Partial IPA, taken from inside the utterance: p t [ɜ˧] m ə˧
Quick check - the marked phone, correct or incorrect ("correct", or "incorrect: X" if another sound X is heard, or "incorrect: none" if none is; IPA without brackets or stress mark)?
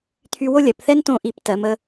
incorrect: ɜ˩˧